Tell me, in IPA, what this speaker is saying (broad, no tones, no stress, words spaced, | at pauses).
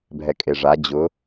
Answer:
bʱɛkʼeʐa d͡ʑʊ